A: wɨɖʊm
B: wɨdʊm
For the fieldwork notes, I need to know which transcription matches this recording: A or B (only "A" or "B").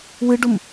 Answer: A